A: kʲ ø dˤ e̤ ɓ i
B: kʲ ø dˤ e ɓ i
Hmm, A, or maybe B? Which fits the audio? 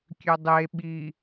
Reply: B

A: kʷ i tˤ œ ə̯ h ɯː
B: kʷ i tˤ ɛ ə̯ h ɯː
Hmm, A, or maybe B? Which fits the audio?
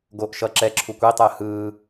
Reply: B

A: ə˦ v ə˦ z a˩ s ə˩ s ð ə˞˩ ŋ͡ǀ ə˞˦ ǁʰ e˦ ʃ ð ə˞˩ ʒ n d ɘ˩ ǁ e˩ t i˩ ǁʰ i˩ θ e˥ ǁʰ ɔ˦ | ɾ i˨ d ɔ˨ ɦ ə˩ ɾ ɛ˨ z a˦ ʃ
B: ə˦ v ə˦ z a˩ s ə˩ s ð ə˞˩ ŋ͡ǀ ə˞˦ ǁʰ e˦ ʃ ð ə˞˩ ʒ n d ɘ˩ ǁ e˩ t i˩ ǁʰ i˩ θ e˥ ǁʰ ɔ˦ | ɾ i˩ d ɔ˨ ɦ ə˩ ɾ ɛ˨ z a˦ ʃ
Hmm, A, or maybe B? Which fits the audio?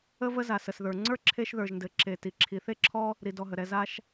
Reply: A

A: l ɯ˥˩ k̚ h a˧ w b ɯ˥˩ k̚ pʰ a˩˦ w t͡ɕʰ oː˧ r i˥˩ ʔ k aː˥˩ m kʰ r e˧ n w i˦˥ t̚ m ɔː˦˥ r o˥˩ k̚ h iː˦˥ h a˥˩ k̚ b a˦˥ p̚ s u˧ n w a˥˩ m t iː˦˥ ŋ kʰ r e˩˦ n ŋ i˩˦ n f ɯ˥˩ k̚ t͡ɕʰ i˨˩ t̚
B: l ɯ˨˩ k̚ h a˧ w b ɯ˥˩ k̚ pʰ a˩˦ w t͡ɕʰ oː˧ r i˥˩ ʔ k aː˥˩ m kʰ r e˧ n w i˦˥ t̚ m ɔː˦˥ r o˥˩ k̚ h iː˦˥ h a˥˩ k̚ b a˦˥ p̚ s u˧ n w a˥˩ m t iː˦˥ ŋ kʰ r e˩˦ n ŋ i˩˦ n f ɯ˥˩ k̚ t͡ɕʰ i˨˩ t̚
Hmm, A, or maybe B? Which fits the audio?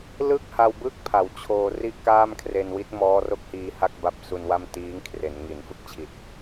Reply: A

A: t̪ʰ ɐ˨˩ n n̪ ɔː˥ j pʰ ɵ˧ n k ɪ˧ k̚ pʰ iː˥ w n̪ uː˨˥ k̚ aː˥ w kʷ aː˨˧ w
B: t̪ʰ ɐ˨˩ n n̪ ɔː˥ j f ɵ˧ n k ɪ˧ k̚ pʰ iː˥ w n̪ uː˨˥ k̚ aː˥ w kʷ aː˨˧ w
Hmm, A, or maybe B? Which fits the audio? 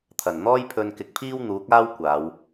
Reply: A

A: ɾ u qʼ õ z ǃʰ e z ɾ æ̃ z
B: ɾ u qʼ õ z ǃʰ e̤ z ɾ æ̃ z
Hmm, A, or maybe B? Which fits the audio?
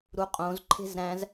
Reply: B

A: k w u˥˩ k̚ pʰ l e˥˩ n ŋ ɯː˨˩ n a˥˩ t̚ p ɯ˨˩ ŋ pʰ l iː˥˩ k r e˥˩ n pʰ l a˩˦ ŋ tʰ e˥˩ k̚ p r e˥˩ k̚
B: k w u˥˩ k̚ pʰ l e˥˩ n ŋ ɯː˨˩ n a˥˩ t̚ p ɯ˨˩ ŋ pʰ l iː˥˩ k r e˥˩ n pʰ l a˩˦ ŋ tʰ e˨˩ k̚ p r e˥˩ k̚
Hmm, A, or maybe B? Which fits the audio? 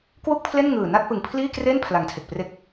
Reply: B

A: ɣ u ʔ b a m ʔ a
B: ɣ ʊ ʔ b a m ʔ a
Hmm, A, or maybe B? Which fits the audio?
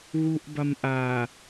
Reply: A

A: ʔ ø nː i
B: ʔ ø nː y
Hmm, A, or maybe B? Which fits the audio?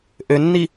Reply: A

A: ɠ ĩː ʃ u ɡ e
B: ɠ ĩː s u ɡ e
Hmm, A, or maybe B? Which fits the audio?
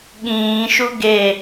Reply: A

